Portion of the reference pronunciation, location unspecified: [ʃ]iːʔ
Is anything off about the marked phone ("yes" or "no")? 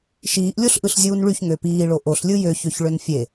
no